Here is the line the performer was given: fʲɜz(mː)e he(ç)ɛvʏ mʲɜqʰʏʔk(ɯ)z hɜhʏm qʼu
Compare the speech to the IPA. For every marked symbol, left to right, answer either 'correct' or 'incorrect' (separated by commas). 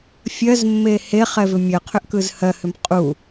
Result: correct, incorrect, correct